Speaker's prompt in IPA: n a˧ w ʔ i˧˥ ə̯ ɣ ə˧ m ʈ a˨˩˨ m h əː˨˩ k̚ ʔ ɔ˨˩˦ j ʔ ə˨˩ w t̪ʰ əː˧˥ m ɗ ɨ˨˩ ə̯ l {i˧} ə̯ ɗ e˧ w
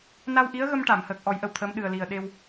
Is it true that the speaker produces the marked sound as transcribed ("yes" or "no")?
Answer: no